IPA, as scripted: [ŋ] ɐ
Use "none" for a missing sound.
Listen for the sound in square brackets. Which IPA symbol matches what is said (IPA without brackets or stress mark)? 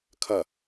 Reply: kʰ